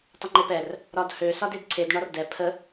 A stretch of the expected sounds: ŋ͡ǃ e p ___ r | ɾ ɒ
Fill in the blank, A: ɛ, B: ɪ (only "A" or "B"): A